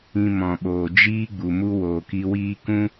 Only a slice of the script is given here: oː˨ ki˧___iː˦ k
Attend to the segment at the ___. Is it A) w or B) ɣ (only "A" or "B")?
A